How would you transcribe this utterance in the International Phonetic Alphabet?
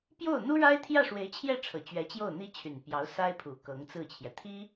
p j o˥˩ ʊ̯ n̪ u˥ ɻ a˥ ɪ̯ t̪ʰ j ä˥˩ ʂ w e˧˥ ɪ̯ t͡ɕʰ j ɛ˥˩ ʈ͡ʂʰ ɤ˨˩ t͡ɕ ɥ ɛ˧˥ t͡ɕ j o˥˩ ʊ̯ n̪ i˥ t͡ɕʰ y˨˩ n p j ɑ˧˥ ʊ̯ s a˥ ɪ̯ pʰ u˨˩ k ɤ˧˥ ŋ t͡s ɹ̩˥˩ t͡ɕʰ j ɛ˩ t̪ʰ i˥

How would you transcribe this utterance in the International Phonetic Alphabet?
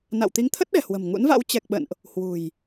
n a̰˧˨ w t̪ i˨˦ ŋ t̪ʰ ə˦˥ t̚ ɗ ɛ̤˨˩ h w ə̤˨˩ m ŋ ṵ˧˥ n v a̰˧˥ w t͡ɕ ɛ˨˩ k̚ ɓ ə̰˧˨ n ʔ | h w ṳ˨˩ j

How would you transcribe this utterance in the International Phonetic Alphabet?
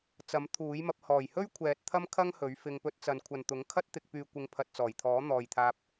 t͡s ɐ˨˥ m t̪ʰ uː˨˥ j m ɐ˧ p̚ h ɔː˨˩ j h ɵ˥ ɥ kʷʰ ɛː˨ t̚ t̪ʰ ɐ˥ m kʰ ɐ˥ ŋ h ɵ˨˥ ɥ f ɪ˧ ŋ p ɵ˧ t̚ t͡s ɐ˨ n kʷʰ ɐ˨ n t̪ ʊ˨˥ ŋ kʰ ɐ˥ t̚ t̪ ɪ˨ k̚ p yː˨ kʷ ɪ˨ ŋ pʰ ɐ˨ t̚ t͡s ɔː˨˩ j t̪ʰ ɔː˨˥ n̪ ɔː˨ j t̪ʰ aː˧ p̚

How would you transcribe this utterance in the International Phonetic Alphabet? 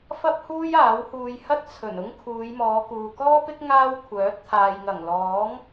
f ɐ˥ p̚ h uː˥ j aː˨˥ w h uː˧ j h ɐ˥ t̚ t͡sʰ ɵ˨˩ n ʊ˥ ŋ kʰ uː˨˧ j m ɔː˨˧ k uː˨ k ɔː˥ p ɪ˥ k̚ ŋ aː˥ w kʷʰ œː˨˥ t̚ t̪ʰ aː˨ j ŋ ɐ˨˩ ŋ l ɔː˨˥ ŋ

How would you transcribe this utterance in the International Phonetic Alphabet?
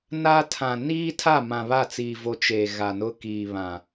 n aː˦ tʰ ã˨ n iː˦ tʰ a˦˨ m ã˨ β a˦˨ t͡s iː˨ v o˨ t͡ʃ eː˨ ɣ a˨ n ʊ˦ k iː˨ β ã˨

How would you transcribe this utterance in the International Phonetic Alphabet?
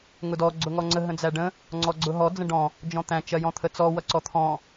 ŋ ʊ d ɔ ɡ͡ǀ ʊ ŋ ɔ ŋ͡ǀ ə ɦ ə̃ d͡z æ ɖ ə̃ | ŋ͡ǀ ɔ ɡ͡ǀ ʊ ɦ ɔ d͡z ə̃ ɖ ɔ̃ | d͡ʒ ɔ̃ t̪ æ̃ t͡ʃ ɜ j ɔ̃ t̪ʰ ə t͡s ɔ w ʌ ǀ ɔ t̪ʰ ɔ̃

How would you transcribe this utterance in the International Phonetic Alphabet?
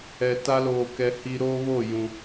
ɛ˨ t a˦ l oː˨ k ɛ˨ h i˨ ɾ oː˦ β o˦˨ j ũ˨

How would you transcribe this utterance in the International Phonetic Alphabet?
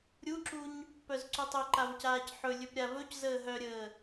ɾʲ u ǁ u ɲ | p œ z ǀ u tˤ ɵ ǃ a v c aː c ħ ɵ lʲ ɵ p ɾʲ a v ɵ c z əː ɦ œ ɾʲ əː

